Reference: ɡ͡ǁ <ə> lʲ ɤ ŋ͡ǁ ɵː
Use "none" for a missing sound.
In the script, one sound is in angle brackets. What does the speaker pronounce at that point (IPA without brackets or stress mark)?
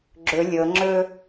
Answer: ɵ